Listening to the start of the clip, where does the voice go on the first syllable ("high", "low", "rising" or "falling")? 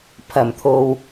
low